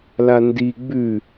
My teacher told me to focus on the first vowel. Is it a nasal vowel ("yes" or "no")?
no